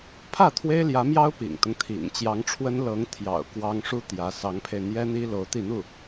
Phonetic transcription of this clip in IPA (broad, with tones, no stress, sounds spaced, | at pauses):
pʰ ä˥˩ t̪ʰ w e˥ ɪ̯ l j ä˧˥ m j ɑ˥ ʊ̯ p ḭ˨˩ ŋ t̪ ʊ˦ ŋ t̪ʰ ḭ˨˩ ŋ t͡ɕ j ɑ˧˥ ŋ ʈ͡ʂʰ w ə˥ n l ɤ˧˥ ŋ t̪ʰ j ɑ̰˨˩ ʊ̯ k w ɑ˥ ŋ ʂ u˥ t̪ j ä˧˥ s ɑ˧˥ ŋ pʰ e˧ ɪ̯ n̪ j ɛ˥ n̪ i˥ l o˧˥ ʊ̯ t̪ i˥˧ n̪ u˥˩